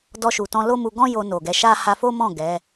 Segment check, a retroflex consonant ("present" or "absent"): absent